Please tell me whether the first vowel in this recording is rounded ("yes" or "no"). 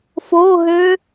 yes